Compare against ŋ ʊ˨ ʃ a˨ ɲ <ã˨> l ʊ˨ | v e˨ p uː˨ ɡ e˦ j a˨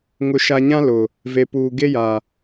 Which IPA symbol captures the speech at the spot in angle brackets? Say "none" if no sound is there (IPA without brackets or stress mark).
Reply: ã˦